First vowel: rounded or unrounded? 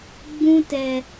rounded